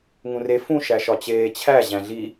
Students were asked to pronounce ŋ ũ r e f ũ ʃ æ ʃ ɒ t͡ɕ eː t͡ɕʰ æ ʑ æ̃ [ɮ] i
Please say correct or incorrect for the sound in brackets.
correct